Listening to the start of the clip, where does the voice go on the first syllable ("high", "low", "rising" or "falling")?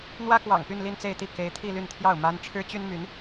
high